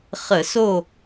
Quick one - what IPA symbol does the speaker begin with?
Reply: χ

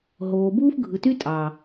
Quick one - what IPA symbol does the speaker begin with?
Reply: ɦ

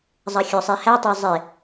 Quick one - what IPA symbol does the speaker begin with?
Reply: zˤ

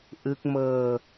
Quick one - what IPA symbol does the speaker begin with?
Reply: ʔ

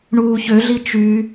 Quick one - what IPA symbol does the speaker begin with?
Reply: ɳ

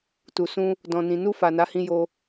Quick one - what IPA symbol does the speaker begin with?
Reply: t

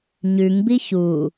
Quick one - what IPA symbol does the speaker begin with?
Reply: ɲ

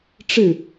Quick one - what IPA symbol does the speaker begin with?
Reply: ʈ͡ʂ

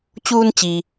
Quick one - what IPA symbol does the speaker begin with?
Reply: t͡ɕ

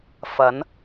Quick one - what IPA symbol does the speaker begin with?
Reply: f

